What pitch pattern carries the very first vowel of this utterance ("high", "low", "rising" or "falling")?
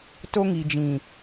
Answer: high